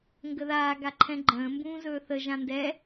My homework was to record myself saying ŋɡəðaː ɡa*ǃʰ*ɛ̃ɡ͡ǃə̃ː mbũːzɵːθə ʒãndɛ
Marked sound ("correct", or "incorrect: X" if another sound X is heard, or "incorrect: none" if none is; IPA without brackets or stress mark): correct